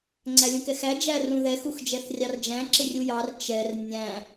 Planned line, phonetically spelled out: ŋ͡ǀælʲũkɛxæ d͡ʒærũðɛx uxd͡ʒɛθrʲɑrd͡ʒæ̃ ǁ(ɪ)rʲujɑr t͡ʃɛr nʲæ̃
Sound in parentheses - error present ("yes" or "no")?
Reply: no